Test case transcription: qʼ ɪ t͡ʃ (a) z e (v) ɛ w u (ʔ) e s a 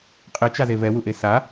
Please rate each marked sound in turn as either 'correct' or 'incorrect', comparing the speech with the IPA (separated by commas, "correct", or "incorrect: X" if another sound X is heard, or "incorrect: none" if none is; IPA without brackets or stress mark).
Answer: correct, correct, correct